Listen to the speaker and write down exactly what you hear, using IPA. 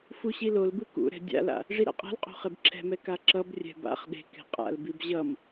fuɕilolbɯ kṵɾɛ̤ dʲa̰la̰ | ʐiɾa̰qʼa̤lqʼo̤ χebǁʰɛ̤mɛ kaǁʌbrʲɛ̤ ba̰χ ɗe̤ kɛ̤qʼa̰lbib ʑʌm

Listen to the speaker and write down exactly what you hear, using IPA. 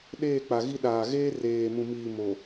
ɗeː˦˨ k͡pa˨ɣi˦ɗaː˨ ɣeː˦ reː˨ mũ˨miː˨ mo˨

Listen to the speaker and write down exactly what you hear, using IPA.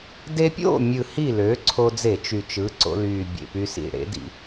de˧pʲo̰˥˨mʲɯ˨˩ hi˥˨lø˩˥ǀʰo˧d͡ze˧˩˧ t͡ʃy˨˩t͡ʃɯ˩˥ǀo̰˧lyː˨˩ bʲḛ˨˩py˧sḭ˨˩ɽḛ˩˥ dḭ˧˩˧

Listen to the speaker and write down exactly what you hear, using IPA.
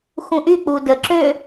xũʔy k͡pudə ǁø

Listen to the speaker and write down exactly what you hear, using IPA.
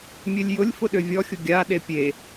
mʲølʲjʊlʲfʊ ɗøvʲɔxʲʊ ɡʲaɗe pʲe

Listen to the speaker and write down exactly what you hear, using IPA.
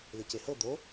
lecehɤ d̪o

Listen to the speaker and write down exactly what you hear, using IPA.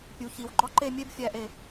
pʲu˩˧çi˩˧wɡ͡ǃɒ˥ǃe˥˧ mʲe˥bfʲæ˧ʔe˧˩

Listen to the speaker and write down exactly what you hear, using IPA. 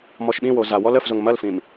mɔʃɓĩwo za wɔləfzʊŋ mɐlfĩm

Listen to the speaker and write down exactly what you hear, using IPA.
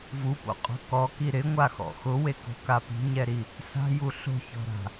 vupo̰qʼo̤ kɔki ɾɪŋʷaxɔ̰ xʊweko̤ka pi̤ɲɛɾi | sa̤ju ɬo̤çɔ̤ɾa̤

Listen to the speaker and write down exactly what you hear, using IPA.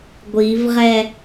ɡʷivʁɛ

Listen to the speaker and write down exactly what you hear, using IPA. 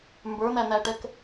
mbə˞n̪æn̪æʈɛk

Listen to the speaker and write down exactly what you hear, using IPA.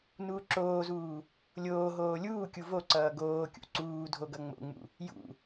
nuːǁoːzuː | lʲoːɦoː lʲuːkʲu vo ǀʌːɡoːkʲṵ ǀuː dʱoɡʌŋ͡mo̰ŋ͡mṵ | jṵ

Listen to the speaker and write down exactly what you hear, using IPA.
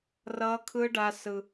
rʌː˦kʰɯ˦ɖa˦sɯ˦

